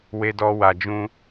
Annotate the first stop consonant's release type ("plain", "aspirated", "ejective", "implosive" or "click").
plain